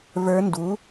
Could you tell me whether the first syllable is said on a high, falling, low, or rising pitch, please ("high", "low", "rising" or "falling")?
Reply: rising